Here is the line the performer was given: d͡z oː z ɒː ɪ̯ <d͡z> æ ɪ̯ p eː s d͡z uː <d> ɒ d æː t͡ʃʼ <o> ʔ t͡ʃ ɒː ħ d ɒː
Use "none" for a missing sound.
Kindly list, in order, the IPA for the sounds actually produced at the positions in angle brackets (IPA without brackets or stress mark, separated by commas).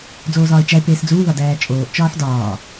t͡ʃ, ð, oː